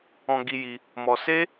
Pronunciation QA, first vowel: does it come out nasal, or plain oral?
nasal